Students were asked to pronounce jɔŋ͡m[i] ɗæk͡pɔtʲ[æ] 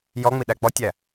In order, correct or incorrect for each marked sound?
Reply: correct, correct

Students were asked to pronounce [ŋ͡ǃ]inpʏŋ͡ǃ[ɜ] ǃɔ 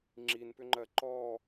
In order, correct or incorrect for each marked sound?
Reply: incorrect, correct

